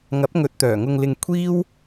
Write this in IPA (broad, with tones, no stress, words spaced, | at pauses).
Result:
ŋɐ˨˥p̚ŋɵ˨˥t̚t̪œː˨˩ ŋʊ˨ŋlɪ˨ŋ kʷʰiː˥w